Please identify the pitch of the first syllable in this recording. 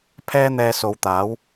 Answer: high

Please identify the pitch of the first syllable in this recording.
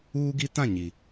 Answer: high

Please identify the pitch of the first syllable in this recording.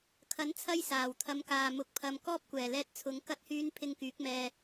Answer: rising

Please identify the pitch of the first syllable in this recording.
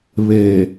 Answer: low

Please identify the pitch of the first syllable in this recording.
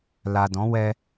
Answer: low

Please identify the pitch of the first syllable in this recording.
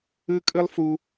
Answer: high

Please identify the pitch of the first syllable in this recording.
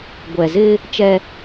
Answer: low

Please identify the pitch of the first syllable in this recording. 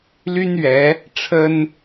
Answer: high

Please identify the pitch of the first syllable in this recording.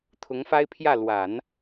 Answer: rising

